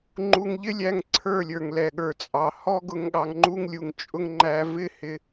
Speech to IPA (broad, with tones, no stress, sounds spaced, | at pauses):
ŋ͡ǃ u˧ ŋ ʎ ɪ˦ lʲ æ˦˨ ŋ ǀʰ ə˞˦˨ lʲ ə˞˨ ŋ l ɛ˨ ɠ ə˞˨ t͡sʼ ɑ˨ h ɔ˦ ɡ ʊ˧ ŋ ɠ ɑ˨ ŋ ŋ͡ǃ u˧ ŋ lʲ u˨ ŋ t͡ʃʼ ʊ˧ ŋ ŋ͡ǃ æ˧ v ɪ˦ h ɪ˧